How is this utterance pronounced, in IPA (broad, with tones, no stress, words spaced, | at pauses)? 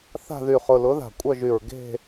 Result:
θa̤˦˨ðy˨˩χʊ˨˩ lʊ˨˥ða̤˨˩ kʷʼœ˦˨ʒy˨˩ɹ ɡe̤˦˨